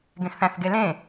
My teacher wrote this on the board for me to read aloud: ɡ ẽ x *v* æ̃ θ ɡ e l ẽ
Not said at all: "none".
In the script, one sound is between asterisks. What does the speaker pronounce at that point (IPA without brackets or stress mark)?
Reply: θ